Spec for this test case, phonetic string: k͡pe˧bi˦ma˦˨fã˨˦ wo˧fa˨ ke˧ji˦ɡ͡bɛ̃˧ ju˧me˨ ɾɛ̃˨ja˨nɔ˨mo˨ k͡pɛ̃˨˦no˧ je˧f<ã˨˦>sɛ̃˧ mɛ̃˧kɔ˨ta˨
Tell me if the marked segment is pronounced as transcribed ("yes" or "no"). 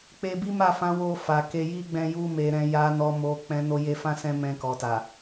no